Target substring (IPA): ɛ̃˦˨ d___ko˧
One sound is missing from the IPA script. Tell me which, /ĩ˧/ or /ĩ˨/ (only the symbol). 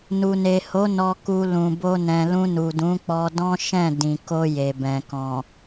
ĩ˨